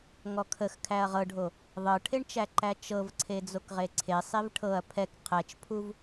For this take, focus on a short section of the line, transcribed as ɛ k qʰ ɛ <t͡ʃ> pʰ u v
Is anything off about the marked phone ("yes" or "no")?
no